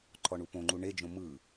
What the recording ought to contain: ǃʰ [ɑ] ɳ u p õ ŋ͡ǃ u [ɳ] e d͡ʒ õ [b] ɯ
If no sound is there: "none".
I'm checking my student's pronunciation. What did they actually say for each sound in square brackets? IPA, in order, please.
ɔ, ɳ, m

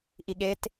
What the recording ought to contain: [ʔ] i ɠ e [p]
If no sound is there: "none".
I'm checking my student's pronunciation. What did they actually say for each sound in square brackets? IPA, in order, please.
ʔ, t

